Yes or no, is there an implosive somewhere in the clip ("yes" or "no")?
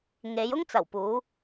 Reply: no